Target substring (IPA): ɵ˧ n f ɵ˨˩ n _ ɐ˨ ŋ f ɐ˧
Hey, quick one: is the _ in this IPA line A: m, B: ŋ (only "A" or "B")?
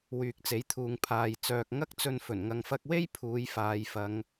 B